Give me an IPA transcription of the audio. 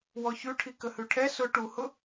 w ɔ ç ʉ ʈʰ i k ə h ʉ ʈʰ ɛ s ʊ ʈ u h ʊ

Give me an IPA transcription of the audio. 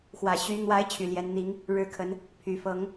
x w ä˨˩ ɕ y˧˥ n̪ w a˧˥ ɪ̯ t͡ɕʰ y˨˩ l j ɛ˧˥ n n̪ i˧˥ ŋ | ɻ ɻ̩˥˩ kʰ ə˧˥ n | pʰ y˨˩ f ɤ˧˥ ŋ

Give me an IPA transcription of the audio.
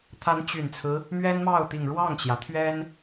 t̪ʰ a˧˥ n t͡ɕ y˨˩ n t͡sʰ ɹ̩˦ | m ɥ ɛ˥ n m ɑ˥˩ ʊ̯ t̪ i˨˩ ŋ ɻ w ɑ˥˩ ŋ t͡ɕ j ä˩ t̪ʰ ɥ ɛ˥ n

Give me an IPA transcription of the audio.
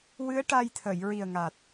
w ɨ˧˥ ə̯ ʈ a˧ j t̪ʰ ə˨˩˨ j ɹ i˨˩ ə̯ ŋ a˨˩ t̚

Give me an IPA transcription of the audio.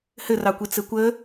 h ɘ r ɑ kʷ i t͡s ɘ kʷ ə

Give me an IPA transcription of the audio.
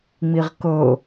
ŋ͡m i ʁ k ɤ

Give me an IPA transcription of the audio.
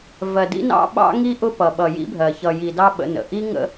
v ɜ˨ d ḭ˦ n ɑ̰˦ ɓ ɑ̰˦ ŋ i˦ ʔ ʊ˦ p ʌ˨ ɓ ʌ˨ j ḭ˦ bʱ ɜ˨ ç ʌ˨ j i˨ d ɑ˦ ɓ ə̰˦ n ə̰˨ ʔ i˦ ŋ ə̰˦

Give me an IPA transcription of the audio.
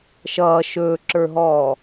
ʃ ʌː ʃ ɵː ǁ ə˞ ɦ ɔː

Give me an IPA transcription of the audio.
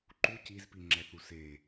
ǃ u c i z p i ŋ͡ǁ ɛ θ u s e

